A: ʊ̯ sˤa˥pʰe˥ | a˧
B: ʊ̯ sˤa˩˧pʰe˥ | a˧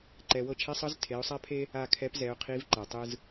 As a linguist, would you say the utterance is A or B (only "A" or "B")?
A